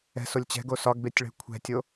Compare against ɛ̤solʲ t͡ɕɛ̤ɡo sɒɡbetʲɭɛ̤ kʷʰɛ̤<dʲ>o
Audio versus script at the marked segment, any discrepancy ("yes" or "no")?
yes